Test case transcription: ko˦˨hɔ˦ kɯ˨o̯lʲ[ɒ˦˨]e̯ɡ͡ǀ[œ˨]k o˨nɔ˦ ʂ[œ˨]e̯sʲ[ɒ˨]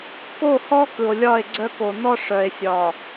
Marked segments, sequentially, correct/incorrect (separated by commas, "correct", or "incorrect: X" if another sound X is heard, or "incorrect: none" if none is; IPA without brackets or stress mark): correct, incorrect: œ˦, correct, correct